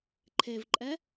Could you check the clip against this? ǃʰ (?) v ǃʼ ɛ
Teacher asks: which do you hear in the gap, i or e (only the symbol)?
e